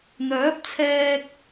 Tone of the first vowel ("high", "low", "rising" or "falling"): rising